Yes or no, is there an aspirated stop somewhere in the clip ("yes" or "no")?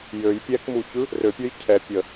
yes